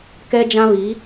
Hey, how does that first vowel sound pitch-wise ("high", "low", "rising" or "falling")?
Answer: high